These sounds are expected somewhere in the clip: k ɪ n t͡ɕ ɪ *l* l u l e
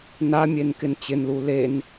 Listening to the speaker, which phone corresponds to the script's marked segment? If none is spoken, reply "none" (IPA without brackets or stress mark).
n